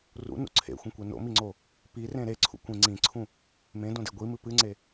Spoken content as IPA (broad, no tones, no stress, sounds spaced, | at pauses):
r ṵ n ṵ ǀʰ ḛ xʷ ĩ kʷ e n o̰ m i ŋ͡ǀ o | p i r ẽ ɾ e ǀʰ ṵ kʷ ĩ ŋ͡ǀ ĩ ǀʰ ũ | m ẽ d õ d e ɡʷ i m ɨ p ɨ ŋ͡ǀ e